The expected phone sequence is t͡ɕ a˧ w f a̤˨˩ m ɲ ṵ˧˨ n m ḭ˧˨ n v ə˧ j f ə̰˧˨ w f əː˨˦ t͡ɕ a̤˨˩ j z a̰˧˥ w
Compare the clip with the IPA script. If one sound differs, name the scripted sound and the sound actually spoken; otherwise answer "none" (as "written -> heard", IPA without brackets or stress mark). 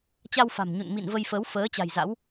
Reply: ə̰˧˨ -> ə˨˦